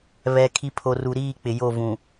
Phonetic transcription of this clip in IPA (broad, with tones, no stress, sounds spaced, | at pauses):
β ɛ˨ kʰ i˨ pʰ o˨ r u˨ ɾ iː˦˨ k͡p ɪ˨ j o˦˨ v ũ˨